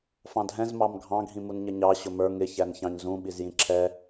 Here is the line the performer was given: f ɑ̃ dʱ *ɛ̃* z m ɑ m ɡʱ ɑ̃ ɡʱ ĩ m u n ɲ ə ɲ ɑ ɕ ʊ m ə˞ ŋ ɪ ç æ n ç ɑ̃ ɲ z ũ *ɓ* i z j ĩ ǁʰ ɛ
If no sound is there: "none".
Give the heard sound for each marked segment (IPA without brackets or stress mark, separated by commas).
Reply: ɛ̃, ɓ